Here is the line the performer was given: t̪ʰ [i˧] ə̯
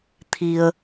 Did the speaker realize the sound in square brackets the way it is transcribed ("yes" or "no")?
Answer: yes